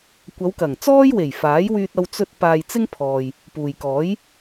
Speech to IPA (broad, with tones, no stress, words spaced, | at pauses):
kʷɐ˨˧wkɐ˨˩ŋt͡sɔː˥jwe˨˩j faː˨˥j wyː˧t̚ɐ˧w t͡sɵ˥t̚ paː˧jt͡sɪ˥ŋpʰɔː˨j | puː˨jkɔː˨˥j